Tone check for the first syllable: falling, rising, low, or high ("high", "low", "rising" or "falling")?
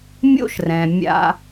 high